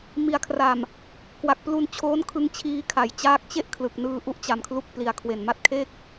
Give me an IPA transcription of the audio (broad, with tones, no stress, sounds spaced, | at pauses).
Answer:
m i˨˩ a̯ kʰ r a˨˩ m | k w a˨˩ k̚ p l u˧ n t͡ɕʰ oː˦˥ n kʰ ɯ˧ ŋ t͡ɕʰ iː˧ kʰ a˩˦ j t͡ɕ aː˥˩ k̚ t͡ɕ e˥˩ ʔ kʰ l ɯ˨˩ k̚ n ɯː˧ ʔ u˦˥ ʔ t͡ɕ a˨˩ m kʰ l u˦˥ k̚ p l i˨˩ a̯ kʰ w e˨˩ n m a˦˥ t̚ kʰ e˥˩ k̚